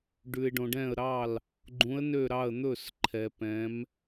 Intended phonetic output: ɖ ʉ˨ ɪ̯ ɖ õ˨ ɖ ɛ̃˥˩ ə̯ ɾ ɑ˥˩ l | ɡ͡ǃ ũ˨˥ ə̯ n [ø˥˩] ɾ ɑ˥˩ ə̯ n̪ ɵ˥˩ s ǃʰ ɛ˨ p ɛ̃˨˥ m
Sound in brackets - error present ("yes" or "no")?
no